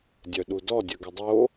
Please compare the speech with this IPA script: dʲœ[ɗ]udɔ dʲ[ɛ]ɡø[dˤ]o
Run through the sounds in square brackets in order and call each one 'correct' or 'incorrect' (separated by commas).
correct, incorrect, correct